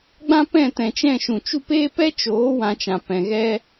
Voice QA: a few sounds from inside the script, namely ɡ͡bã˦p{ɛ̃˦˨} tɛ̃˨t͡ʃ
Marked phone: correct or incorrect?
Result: correct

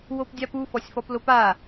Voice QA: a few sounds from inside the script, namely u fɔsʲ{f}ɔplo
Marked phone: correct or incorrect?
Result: correct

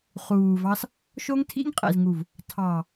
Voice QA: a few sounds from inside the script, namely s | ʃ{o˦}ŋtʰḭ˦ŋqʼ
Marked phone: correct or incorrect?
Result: correct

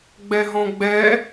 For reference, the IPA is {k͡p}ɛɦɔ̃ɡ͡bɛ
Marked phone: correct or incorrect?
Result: incorrect: ɡ͡b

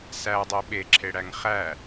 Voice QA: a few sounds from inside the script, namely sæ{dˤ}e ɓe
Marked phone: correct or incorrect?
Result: correct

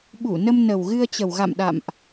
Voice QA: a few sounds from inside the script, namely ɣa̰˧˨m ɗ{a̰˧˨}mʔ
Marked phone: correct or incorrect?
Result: correct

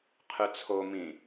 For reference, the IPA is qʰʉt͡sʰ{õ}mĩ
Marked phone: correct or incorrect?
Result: incorrect: o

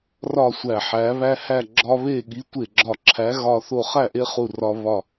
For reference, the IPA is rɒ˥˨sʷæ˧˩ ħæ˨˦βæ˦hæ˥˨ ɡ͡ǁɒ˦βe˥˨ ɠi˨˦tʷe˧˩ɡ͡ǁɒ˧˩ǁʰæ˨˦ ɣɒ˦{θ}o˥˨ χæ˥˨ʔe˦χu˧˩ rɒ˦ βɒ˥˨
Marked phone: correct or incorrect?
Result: correct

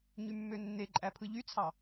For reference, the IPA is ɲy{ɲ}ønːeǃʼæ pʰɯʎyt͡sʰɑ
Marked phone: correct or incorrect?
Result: incorrect: mː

